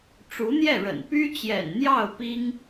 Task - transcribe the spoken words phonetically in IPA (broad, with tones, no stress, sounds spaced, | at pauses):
ʈ͡ʂ u˧˥ n̪ j ɛ˥˩ ɻ ə̰˨˩ n p y˥ t͡ɕ j ɛ̰˨˩ n n̪ j ɑ˥˩ ʊ̯ p i˥ ŋ